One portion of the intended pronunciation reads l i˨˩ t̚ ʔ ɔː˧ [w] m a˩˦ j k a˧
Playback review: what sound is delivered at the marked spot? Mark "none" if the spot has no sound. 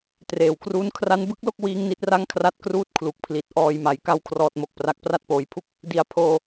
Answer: j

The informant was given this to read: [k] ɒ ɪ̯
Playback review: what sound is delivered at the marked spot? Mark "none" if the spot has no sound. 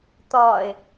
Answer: t̪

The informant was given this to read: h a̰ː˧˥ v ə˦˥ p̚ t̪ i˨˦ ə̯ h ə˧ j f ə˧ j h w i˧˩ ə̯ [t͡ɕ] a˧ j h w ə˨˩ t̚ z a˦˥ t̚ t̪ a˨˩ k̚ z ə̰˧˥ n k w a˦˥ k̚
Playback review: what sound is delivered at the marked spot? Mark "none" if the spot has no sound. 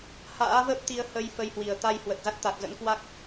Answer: t̪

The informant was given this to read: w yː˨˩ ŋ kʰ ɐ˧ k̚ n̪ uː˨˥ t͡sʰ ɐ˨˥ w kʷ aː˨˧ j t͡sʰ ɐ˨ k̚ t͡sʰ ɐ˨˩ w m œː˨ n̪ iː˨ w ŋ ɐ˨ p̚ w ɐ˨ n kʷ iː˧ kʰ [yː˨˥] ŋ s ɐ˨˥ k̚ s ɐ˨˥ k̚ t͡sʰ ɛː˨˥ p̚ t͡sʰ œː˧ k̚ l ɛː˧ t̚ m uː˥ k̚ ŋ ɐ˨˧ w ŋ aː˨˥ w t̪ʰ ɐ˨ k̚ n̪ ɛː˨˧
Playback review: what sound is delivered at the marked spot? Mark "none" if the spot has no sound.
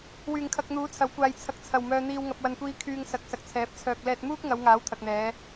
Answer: yː˨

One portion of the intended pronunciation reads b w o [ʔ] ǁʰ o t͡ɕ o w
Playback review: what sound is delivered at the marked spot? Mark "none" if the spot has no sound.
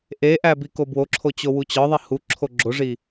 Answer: none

